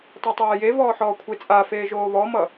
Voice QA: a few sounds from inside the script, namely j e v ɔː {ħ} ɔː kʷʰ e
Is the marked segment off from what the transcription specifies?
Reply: no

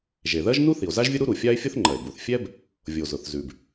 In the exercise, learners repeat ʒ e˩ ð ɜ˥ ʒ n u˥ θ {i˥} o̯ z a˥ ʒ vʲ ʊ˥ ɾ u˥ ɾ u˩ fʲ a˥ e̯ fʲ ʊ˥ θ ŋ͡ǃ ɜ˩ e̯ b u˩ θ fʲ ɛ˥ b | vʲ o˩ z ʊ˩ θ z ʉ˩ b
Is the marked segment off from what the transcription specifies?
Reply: yes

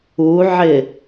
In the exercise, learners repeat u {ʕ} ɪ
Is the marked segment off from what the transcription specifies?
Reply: no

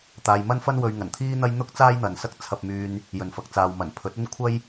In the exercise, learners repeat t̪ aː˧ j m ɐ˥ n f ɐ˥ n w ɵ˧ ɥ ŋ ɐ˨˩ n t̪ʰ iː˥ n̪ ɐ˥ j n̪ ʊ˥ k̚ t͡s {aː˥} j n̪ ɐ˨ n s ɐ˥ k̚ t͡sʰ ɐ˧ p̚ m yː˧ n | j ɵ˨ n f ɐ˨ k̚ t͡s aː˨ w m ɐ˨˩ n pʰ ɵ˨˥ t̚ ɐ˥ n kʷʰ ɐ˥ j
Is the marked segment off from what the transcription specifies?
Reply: no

